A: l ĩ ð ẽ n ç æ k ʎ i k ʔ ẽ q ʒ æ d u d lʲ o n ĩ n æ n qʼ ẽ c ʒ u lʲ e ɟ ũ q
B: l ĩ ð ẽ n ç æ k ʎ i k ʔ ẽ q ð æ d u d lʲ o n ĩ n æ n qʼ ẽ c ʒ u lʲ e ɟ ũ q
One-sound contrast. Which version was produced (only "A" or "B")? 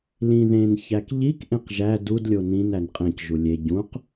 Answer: A